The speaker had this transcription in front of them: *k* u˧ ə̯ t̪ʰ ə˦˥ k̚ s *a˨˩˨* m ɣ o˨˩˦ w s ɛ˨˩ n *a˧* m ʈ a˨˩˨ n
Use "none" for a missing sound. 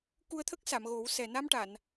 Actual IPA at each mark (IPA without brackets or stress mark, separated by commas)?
k, a˨˩˨, a˧